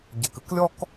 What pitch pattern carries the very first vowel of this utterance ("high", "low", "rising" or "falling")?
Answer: low